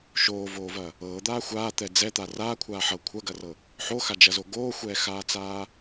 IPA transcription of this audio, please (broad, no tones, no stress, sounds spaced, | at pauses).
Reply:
ʃ oː v oː v ɐ | ɤː d̪ aː xʷ aː t̪ ɛ d͡z ɛ t̪ a r aː kʷʰ aː ħ ɤ kʷʰ ɐ ɡ ɐ r ɤ | ħ o x a d͡ʒ ɐ z o ɡ oː xʷ ɛː x aː t͡s aː